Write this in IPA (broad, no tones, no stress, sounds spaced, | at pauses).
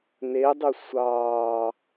n e dˤ y sʷ ɑː